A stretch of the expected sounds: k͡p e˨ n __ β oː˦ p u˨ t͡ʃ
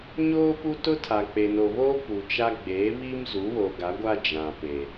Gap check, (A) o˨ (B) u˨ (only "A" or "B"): A